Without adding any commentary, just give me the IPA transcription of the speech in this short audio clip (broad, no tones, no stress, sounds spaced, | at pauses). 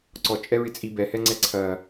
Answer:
ǀ ɔ t͡ʃʼ ɛ ɹ ɪ t͡sʼ i b ɛ h ɛ ŋ͡ǀ ɛ ǀʰ ɐ